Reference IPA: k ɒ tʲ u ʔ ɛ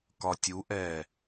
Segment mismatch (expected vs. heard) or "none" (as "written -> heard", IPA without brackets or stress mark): none